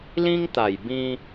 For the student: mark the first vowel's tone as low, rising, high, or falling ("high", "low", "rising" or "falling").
high